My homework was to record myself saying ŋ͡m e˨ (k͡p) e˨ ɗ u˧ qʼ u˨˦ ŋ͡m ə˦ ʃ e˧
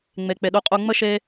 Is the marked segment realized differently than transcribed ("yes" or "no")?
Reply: no